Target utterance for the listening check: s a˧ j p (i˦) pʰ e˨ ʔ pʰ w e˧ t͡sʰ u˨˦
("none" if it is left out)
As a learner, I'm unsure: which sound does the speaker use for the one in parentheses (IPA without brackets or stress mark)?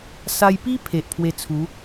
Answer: i˦